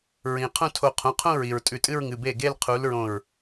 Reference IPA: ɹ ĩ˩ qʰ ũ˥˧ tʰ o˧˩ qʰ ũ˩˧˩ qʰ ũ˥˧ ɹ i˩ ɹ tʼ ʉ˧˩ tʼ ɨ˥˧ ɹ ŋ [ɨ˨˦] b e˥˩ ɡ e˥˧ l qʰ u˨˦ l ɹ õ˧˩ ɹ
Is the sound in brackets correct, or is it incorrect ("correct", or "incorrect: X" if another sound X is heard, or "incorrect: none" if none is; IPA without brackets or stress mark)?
incorrect: ɨ˩˧˩